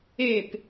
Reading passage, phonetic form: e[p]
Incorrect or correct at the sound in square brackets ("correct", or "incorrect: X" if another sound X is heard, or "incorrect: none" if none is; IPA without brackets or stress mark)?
correct